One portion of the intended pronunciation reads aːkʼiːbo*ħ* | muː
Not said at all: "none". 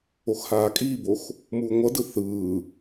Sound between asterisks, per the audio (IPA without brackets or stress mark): x